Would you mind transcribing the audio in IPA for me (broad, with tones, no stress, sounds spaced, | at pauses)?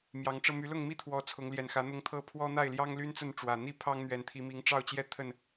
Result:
m j ɑ˨˦ ŋ ʈ͡ʂ ɤ˧ m y˨˦ l ʊ˥˨ ŋ m i˥˨ t̪ʰ w ɔ˨˦ t͡sʰ ʊ˨˦ ŋ l j ɛ˨˩ n x ä˨˦ n̪ ʊ˦ ŋ t̪ʰ ɤ˥˨ pʰ w ɔ˦ n̪ a˥˨ ɪ̯ l j ɑ˦ ŋ l y˦ n t͡s ə˥˨ n ʈ͡ʂ w ä˨˩ n̪ i˥˨ pʰ ɑ˦ ŋ n̪ ɥ ɛ˨˦ n t̪ʰ i˨˦ m i˨˦ ŋ ʈ͡ʂ ɑ˥˨ ʊ̯ t͡ɕ j ɛ˥˨ t̪ʰ ə˥˨ n